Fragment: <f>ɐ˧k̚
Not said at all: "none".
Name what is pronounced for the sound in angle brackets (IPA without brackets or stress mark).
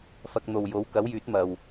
f